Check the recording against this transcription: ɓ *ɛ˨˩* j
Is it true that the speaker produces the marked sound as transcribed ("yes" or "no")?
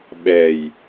yes